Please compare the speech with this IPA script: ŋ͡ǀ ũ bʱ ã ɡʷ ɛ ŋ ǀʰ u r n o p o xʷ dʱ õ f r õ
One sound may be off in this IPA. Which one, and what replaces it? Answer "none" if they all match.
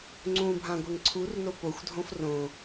none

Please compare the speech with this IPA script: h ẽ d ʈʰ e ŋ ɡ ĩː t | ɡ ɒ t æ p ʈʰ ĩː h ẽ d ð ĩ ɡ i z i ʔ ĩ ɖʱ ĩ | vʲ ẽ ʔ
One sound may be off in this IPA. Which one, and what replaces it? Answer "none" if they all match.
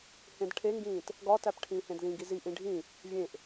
none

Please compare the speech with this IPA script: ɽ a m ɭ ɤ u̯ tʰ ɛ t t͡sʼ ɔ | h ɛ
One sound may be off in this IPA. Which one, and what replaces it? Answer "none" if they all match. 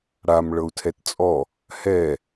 none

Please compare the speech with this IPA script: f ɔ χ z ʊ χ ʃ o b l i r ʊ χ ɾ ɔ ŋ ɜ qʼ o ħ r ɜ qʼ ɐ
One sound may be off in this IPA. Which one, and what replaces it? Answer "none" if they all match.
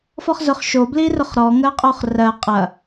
ħ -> χ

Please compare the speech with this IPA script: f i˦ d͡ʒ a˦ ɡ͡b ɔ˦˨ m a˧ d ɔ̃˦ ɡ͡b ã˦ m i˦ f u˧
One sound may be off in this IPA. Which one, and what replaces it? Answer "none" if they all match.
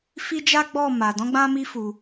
none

